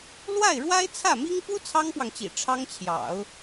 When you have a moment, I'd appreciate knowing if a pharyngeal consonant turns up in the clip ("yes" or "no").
no